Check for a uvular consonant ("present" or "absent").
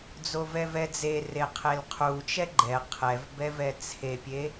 present